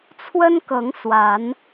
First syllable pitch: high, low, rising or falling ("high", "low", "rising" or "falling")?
high